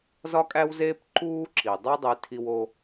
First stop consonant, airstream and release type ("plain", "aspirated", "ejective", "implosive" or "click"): ejective